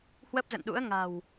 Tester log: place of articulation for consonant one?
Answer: glottal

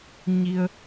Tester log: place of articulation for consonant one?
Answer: palatal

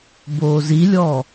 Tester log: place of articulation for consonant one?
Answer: labial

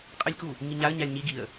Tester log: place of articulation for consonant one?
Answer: uvular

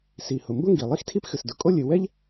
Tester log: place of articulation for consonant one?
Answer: alveolar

